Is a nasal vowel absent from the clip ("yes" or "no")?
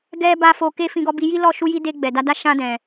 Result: no